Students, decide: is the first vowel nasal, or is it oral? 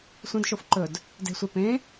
nasal